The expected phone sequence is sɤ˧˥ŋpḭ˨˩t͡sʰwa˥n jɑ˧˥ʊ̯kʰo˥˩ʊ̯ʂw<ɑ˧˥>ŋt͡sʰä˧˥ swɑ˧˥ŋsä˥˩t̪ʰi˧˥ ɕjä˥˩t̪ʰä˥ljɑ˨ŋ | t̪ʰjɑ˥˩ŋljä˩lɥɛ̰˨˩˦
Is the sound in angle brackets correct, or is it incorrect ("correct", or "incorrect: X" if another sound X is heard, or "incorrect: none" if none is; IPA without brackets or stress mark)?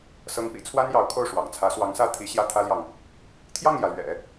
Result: incorrect: ɑ̰˨˩